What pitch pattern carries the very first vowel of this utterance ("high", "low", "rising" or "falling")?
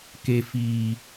low